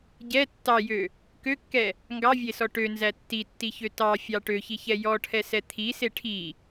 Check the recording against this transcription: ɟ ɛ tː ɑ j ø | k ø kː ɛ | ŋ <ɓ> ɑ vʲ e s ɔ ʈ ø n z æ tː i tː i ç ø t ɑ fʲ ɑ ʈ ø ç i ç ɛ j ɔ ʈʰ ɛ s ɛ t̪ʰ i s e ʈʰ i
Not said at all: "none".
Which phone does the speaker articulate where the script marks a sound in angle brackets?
ɡ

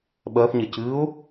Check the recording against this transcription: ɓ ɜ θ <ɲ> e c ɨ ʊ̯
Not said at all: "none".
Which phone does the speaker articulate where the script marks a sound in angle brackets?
ɲ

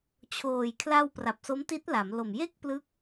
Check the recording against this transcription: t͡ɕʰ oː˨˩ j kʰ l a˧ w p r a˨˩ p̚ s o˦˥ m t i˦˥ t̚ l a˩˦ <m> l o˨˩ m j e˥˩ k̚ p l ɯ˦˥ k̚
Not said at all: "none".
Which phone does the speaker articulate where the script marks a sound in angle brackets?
m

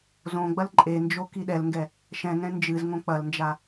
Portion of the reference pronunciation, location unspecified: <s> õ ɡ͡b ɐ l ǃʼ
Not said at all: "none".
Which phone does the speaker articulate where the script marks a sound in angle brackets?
z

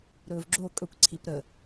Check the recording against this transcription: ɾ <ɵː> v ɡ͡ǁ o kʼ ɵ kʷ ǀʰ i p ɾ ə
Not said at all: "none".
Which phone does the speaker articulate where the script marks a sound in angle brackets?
ɵː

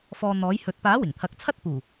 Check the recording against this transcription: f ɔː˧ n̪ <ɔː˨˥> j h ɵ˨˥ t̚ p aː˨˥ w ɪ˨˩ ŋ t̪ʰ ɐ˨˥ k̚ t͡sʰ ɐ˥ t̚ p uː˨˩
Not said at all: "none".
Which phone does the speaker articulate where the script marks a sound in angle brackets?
ɔː˨˥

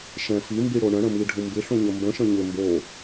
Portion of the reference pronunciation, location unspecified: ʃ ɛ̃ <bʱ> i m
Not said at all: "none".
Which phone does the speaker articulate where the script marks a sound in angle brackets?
f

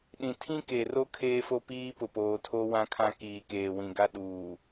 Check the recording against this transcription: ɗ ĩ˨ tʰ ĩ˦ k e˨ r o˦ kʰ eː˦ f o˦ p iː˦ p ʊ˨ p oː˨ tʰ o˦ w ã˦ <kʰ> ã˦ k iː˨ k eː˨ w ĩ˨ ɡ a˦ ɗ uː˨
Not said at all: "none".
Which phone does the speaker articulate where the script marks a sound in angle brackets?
kʰ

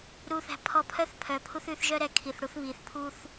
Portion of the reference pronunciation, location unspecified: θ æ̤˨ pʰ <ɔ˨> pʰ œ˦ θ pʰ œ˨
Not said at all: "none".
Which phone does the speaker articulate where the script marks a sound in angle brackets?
ɔ˨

